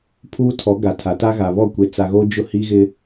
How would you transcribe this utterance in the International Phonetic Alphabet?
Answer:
pʰuː˦tʰɔ˨˦ ɡa˨tʰa˨˦ ta˦ɣa˨ βɔ˦˨kʷe˨t͡sa˨ ɣoː˦d͡ʒʊ˦hi˦ɣɪ˦

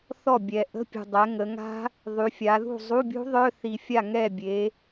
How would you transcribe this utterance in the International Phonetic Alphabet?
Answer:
θɔ˥˩bʲɛ˨˩ ʔə̤˧˥˧pʲṳ˨˩dˤɛ˩˧ ŋə˩˧ŋa̤˦˥ | ðˤy˩˧fʲa˩˧ðṳ˥˩ zˤu˧˥˧bʲṳ˦˥ ðˤœ˧˥˧θi˨˩fʲa˥˩ ŋɛ˥˩ bʲe˩˧

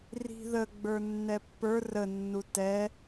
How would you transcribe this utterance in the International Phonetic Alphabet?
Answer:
ri̤ ðə ɡ͡bə˞nːɛpːə˞ rə nːutɛ

